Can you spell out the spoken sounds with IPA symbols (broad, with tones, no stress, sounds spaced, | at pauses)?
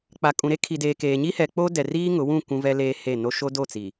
k͡p a˨ kʼ ũ˨ ɾ e˦ kʰ i˨ d eː˨ k eː˨ ɲ i˦ h ɛ˨ k͡p o˦ d ɛ˨ r iː˦ ŋ ʊ˨˦ w ũ˦˨ kʷ ũ˦ v ɛ˦ l eː˦ h e˦˨ n o˦ ʃ o˦ d o˦˨ t͡s i˨